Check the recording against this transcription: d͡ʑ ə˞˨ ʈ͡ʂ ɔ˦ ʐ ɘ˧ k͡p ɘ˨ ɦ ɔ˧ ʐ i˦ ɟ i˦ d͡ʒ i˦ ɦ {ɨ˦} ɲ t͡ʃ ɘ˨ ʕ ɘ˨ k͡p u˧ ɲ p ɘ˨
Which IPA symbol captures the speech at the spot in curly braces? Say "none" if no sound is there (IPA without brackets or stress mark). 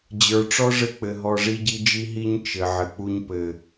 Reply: i˦